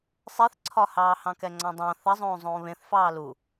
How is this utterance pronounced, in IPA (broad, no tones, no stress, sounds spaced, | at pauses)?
sˤ e θ ǀʰ ɒ h ɑː h ɑ̃ k ɛ ŋ͡ǀ ɑ̃ dˤ ɑ̃ θ ɐ zˤ õː zˤ õː β ẽ θ f ɑː l u